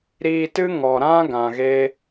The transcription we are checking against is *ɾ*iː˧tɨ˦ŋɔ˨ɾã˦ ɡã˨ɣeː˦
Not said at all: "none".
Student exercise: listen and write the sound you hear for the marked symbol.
ɾ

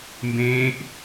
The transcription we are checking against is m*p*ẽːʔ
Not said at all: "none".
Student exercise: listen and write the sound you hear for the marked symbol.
b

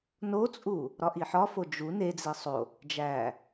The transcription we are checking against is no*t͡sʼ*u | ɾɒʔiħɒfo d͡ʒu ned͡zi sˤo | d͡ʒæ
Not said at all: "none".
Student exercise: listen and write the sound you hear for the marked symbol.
t͡sʼ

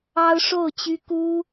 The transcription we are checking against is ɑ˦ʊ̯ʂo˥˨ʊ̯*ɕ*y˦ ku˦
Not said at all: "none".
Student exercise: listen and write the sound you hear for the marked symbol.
t͡ɕ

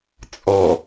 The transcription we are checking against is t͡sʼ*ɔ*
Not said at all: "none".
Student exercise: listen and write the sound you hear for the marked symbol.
ɔ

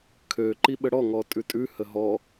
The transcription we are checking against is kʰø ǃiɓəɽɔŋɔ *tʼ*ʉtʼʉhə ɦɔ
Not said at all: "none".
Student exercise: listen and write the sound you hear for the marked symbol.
tʼ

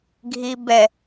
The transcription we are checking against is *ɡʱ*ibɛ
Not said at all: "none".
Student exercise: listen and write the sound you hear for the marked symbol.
ɡʱ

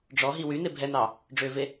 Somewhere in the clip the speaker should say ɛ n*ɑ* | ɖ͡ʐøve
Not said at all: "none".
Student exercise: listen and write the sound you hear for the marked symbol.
ɑ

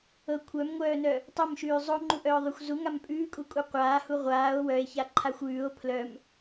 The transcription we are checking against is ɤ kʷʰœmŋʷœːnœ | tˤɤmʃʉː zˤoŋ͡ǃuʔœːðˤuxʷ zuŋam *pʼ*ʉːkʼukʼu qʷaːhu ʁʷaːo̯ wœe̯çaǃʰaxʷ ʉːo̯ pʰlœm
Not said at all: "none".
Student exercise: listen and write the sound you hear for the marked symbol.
pʼ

